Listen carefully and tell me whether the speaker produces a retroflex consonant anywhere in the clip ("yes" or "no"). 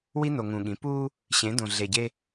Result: no